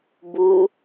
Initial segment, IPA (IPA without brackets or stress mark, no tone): b